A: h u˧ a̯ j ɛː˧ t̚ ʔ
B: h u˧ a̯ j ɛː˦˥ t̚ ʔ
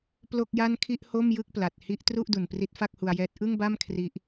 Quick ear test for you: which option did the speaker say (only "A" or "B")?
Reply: B